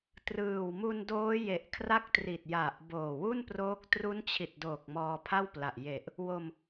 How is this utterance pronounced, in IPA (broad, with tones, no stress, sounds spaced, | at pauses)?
t r ɯː˨˩ w m u˧ n d oː˦˥ j e˨˩ ʔ kʰ r a˦˥ k̚ t r i˨˩ t̚ j a˨˩ ʔ b oː˨˩ w u˥˩ n p r oː˦˥ k̚ t r u˦˥ n t͡ɕʰ i˨˩ t̚ d oː˨˩ k̚ m ɔː˧ pʰ a˥˩ w p l a˨˩ ʔ j e˨˩ ʔ | w o˧ m